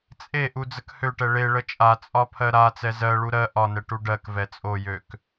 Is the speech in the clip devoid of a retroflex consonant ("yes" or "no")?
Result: no